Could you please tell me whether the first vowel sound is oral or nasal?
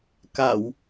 oral